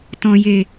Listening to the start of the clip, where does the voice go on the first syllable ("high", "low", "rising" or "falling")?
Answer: low